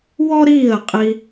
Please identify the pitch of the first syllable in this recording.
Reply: high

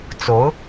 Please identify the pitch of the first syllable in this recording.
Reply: rising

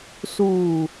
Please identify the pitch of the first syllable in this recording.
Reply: low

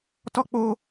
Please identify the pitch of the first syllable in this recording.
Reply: high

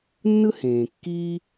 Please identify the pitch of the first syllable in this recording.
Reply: high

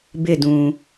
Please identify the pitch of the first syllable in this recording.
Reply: falling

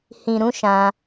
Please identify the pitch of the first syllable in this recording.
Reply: low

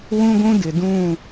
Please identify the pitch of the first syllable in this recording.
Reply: high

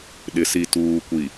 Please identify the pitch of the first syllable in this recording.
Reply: low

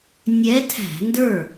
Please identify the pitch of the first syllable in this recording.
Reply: rising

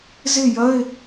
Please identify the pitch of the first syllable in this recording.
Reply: falling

